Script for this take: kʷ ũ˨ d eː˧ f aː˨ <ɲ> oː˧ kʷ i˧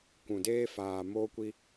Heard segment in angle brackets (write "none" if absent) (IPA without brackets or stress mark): m